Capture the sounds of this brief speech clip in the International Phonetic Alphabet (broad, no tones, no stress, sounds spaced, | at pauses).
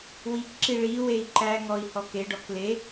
w i k ǁ i ɭ i w e i̯ ǃ æ ŋ ɔ i̯ h ɔ k e ɖ ɔ k l e